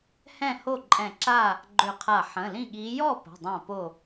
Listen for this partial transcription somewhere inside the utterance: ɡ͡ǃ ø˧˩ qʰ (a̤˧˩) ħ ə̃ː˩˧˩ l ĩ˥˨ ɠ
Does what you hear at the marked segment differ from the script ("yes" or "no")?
yes